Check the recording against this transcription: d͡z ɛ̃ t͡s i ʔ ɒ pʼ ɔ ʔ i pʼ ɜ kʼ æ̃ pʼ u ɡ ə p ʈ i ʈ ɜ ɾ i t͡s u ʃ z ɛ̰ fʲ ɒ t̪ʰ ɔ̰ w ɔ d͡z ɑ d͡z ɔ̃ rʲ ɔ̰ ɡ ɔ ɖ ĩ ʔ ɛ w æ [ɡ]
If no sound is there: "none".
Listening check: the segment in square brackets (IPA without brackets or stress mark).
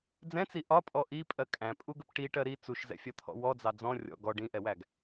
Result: ɡ